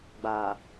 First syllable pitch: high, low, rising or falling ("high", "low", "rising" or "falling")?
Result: low